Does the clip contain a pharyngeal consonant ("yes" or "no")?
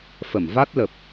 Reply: no